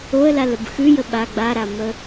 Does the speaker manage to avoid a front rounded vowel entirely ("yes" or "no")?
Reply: yes